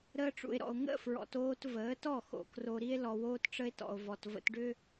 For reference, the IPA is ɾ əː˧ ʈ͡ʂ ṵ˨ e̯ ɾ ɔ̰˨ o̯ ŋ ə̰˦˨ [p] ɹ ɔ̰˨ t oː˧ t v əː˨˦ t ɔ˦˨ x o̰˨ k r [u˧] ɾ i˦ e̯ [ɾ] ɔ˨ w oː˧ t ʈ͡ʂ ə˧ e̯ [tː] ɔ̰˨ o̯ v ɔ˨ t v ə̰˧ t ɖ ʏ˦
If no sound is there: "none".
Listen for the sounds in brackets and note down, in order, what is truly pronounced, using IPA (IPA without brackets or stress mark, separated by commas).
f, o˧, l, t